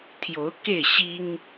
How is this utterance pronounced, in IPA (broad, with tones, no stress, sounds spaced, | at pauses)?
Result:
t̪ʰ j o˨˦ ʊ̯ k e˥˨ ɪ̯ ɕ i˦ ŋ